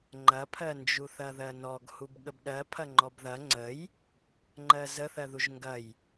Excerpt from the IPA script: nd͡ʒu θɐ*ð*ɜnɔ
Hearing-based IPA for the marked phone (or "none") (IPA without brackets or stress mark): ð